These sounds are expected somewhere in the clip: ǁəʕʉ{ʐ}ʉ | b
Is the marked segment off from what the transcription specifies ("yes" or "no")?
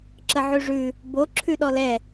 no